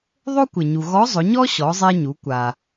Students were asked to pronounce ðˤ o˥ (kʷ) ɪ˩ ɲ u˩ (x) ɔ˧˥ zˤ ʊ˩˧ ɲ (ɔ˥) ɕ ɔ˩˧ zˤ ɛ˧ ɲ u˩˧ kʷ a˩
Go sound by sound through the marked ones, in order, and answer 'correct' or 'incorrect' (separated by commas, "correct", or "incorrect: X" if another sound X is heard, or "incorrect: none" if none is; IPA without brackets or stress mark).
correct, incorrect: ɣ, correct